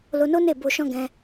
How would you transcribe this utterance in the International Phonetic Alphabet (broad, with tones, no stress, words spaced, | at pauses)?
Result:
lo˧no˦ ne˦˨bo˧ʃɔ̃˦ ɡɛ̃˦